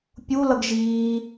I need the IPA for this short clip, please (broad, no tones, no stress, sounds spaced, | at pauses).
pʲ u l ʌ ɡ ʒ iː